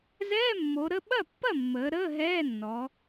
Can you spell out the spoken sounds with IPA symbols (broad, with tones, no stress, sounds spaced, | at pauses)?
z ɛː˧˥˧ mː o˩˧ ɾ ə˧˥˧ ɓ ɐ˥˩ pː ɐ˥˩ mː əː˩˧ ɾ əː˧˥˧ ɦ ɛː˧˥˧ nː ɔ˩˧